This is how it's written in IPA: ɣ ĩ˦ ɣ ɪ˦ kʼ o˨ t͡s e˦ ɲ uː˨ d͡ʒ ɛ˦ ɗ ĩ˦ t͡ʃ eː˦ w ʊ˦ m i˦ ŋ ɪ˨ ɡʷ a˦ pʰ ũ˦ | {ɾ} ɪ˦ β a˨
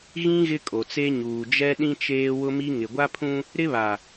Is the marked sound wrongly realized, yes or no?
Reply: no